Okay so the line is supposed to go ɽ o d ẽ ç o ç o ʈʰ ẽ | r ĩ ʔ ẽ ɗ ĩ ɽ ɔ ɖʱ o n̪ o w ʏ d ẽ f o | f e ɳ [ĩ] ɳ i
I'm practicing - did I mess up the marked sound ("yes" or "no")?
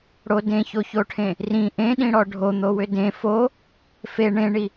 yes